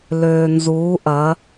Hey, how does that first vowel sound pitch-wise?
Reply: low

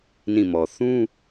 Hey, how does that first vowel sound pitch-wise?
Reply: falling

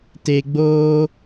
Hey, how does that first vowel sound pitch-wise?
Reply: low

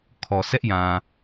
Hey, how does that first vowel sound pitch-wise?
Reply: low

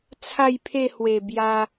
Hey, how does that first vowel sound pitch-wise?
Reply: falling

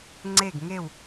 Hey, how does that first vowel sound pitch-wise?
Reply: falling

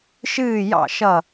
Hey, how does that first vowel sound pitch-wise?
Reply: falling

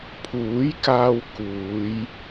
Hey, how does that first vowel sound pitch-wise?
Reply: rising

